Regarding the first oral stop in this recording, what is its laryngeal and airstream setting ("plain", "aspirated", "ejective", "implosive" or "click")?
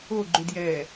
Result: click